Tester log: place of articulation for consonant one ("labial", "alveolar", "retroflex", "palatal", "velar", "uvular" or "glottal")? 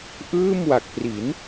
glottal